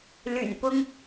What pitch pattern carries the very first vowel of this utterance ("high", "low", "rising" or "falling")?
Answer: low